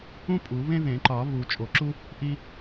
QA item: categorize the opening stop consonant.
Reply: ejective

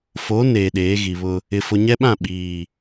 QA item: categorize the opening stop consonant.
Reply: implosive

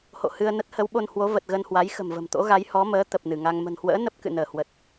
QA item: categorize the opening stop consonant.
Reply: plain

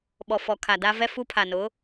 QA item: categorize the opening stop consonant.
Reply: implosive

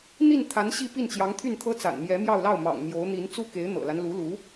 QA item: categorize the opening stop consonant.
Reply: aspirated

